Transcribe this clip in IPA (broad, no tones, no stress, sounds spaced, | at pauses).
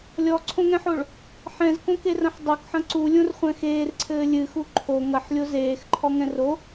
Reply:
lʲ ɔ ǀʰ õ ŋ ɛ̃ ħ o ɭ | ħ ɛ̃ z k õ k e r ɐ̃ ħ dˤ o k ħ ɐ̃ ǀ u lʲ õ r χʷ ɛ̃ x eː r ǀʰ ɘː lʲ ɨ x u ǃʰ o ŋ ɐ ħ lʲ o z eː x ǃʰ ɔ ŋ ɛ̃ r o